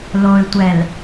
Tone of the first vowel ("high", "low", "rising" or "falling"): low